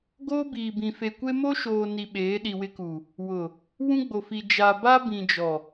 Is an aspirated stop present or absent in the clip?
absent